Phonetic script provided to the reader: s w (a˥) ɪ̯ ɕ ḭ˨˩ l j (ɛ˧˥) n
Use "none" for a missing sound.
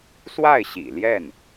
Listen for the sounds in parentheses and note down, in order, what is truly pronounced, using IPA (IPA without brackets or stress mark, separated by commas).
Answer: a˥˩, ɛ˥˩